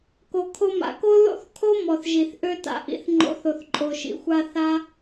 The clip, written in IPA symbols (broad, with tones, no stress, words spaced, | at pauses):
ko˨kʰo˧ma̰˨ko˦ ðo̰˦˨θkʰo˦ mɔ˨θ ʒi˨θ ʔø˧ta̰˨ʔḭ˨θ ŋ͡ǃo̰˨˦θo˨θ ǃʼo˨ʃḭ˨xʷa˧ θa˦